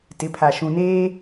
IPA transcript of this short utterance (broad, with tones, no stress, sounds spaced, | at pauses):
t ɪ˨˦ pʰ a˨ ʃ ũ˨ n eː˦